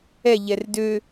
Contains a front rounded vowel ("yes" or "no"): yes